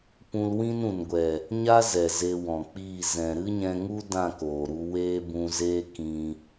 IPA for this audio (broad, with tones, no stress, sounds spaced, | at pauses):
p ũ˧ l w ĩ˦ n ũ˨ n ɡʷ ɛ˨ | ɲ a˦ z ɛ˨ z e˧ w ɔ̃˨ k͡p iː˦˨ z ɛ̃˨ ɾ ɨ˦ ɲ ɛ̃˧ ŋ u˦ d ã˦˨ k oː˨ ɾ u˧ w eː˦ b ũ˧ z eː˦ k ĩ˧